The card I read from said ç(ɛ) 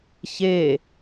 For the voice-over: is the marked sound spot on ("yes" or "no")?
no